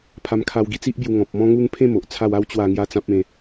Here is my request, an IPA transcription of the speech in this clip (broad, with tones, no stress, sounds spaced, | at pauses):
pʰ a˧ m kʰ a˧ w ɡ i˧ t͡s i˦ ʔ b j u˧ ŋ ɔ̃˨ p̚ m ɔ̃˧ ŋ u˧ ŋ pʰ ẽ˥˧ m o˨ ʔ t͡sʰ a˥˧ w a˦ w t͡ɕ w a˥˧ ŋ j a˦ t͡s ã˦ p̚ ẽ˧